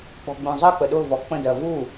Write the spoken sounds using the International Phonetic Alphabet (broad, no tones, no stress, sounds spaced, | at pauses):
k͡p ɔ̤ ɡ͡b ũ zˤ ɜ k͡p ə ɗ ʊ v ɔ k͡p ə̃ d ɜ v u